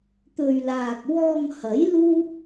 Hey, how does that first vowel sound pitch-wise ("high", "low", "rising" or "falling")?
low